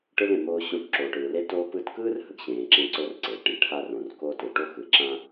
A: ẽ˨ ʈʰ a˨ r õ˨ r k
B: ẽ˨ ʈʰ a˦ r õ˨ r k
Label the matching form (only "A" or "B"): B